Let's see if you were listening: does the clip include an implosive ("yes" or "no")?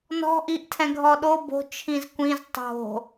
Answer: yes